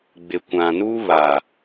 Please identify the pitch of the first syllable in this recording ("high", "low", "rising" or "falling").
low